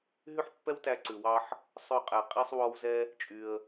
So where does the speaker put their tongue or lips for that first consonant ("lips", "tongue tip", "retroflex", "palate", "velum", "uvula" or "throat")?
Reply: throat